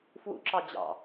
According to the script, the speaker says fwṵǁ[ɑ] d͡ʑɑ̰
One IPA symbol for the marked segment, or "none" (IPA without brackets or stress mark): ɑ